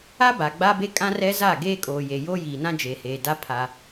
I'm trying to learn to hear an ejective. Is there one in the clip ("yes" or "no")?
yes